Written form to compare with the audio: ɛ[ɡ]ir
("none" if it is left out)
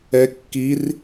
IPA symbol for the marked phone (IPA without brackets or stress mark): kː